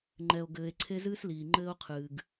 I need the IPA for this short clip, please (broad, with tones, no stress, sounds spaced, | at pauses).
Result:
ŋ͡ǃ ɛ˧ o̯ ɡ ɘː˧ e̯ ǀʰ e˦ z ɨː˦ s l iː˨ ŋ͡ǃ ɘː˦ o̯ qʰ ɨː˨ ɡ